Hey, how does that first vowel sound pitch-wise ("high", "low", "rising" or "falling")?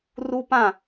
high